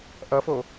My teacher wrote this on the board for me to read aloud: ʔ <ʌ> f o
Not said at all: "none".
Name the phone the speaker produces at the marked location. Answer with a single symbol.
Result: ʌ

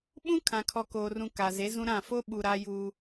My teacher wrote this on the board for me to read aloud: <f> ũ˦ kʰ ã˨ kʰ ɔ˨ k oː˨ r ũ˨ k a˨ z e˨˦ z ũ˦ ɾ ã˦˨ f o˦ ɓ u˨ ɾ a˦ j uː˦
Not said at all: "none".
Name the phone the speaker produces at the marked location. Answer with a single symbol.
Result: ɓ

